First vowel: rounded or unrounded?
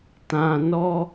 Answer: unrounded